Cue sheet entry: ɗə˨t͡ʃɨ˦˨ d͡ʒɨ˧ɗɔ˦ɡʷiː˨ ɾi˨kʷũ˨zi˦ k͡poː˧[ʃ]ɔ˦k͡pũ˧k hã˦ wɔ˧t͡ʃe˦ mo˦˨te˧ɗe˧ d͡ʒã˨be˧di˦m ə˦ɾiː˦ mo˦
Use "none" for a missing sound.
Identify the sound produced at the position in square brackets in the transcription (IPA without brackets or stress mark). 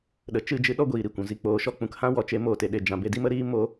ʃ